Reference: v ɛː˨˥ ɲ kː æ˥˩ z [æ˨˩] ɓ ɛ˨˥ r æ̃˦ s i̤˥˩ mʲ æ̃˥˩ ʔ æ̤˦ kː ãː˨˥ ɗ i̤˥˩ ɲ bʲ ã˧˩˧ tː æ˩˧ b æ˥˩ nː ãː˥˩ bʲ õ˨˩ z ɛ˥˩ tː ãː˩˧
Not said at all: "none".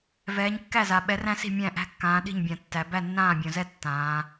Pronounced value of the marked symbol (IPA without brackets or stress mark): a˨˩